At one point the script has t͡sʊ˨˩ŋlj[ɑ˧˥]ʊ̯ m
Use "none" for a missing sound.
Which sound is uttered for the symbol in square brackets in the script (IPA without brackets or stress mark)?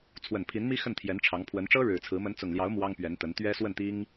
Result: ɑ˧˥